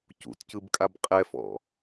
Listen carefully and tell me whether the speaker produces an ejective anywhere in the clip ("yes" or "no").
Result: yes